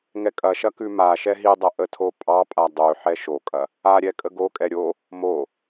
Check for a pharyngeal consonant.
present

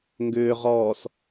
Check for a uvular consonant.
present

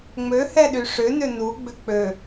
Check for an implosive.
present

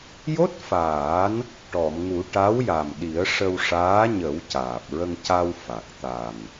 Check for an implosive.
present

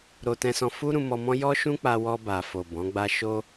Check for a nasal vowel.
present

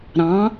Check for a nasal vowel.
present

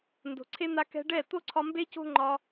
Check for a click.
present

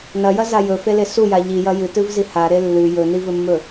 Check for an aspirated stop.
absent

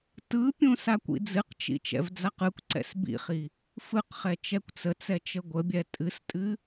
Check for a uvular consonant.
present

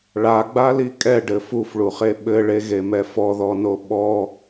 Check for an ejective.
present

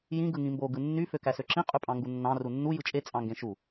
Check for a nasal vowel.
present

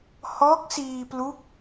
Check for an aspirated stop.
absent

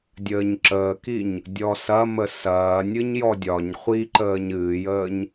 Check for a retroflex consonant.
absent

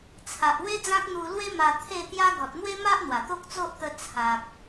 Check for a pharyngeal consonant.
absent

